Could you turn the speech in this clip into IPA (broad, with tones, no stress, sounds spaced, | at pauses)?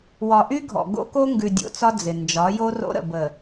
w ɒ˨ ʔ y˦ ɡʱ ɔ̰˨ ɡ o̰˦ k o˦ ŋ ɡ ʉ˨ dʲ o̰˨ t͡s ɒ˦ d͡z ɪ˨ n d͡ʒ ɒ˨˦ j o˦ r o̰˦ ɾ ə̰˨ b ə˨